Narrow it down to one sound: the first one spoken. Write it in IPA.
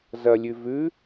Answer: z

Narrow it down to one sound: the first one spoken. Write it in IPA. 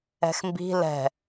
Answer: ɛ̤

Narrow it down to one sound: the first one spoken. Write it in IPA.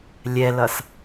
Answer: lʲ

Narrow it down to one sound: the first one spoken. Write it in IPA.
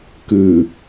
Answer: k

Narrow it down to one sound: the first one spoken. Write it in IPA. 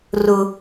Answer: r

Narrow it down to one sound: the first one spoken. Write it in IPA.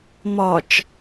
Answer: m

